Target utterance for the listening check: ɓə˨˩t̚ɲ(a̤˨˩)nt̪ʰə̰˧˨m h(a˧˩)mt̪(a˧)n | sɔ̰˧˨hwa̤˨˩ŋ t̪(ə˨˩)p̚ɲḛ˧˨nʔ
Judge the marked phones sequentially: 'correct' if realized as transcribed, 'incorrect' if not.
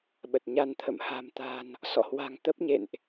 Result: incorrect, incorrect, incorrect, incorrect

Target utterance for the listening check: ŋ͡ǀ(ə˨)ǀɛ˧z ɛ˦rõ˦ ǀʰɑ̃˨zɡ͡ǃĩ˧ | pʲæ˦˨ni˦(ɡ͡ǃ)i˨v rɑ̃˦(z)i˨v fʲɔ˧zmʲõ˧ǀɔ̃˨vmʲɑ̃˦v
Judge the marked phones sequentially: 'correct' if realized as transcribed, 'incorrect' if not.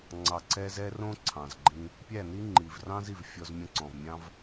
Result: incorrect, incorrect, correct

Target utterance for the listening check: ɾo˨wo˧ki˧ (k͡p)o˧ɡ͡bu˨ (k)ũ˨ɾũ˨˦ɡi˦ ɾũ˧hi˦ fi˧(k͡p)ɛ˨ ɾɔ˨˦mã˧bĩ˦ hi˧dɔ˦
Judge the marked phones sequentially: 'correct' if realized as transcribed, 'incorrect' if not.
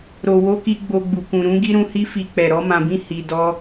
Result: incorrect, correct, correct

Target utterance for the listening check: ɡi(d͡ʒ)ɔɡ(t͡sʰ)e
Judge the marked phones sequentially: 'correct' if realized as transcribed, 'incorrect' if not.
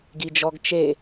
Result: correct, incorrect

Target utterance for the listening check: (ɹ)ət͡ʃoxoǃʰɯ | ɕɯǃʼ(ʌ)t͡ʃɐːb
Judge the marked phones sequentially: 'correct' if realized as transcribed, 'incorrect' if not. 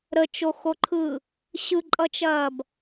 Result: incorrect, correct

